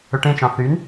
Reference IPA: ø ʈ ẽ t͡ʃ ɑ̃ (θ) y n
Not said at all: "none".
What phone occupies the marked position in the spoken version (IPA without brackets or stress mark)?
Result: θ